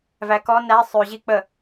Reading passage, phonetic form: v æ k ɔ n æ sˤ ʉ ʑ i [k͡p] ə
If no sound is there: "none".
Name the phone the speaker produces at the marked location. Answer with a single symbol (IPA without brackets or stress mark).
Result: k͡p